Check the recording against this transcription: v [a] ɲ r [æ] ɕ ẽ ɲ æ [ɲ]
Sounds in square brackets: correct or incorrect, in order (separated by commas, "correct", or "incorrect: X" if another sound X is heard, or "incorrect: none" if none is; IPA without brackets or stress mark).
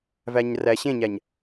incorrect: æ, correct, correct